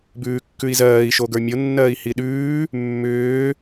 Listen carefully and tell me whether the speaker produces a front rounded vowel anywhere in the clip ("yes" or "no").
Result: yes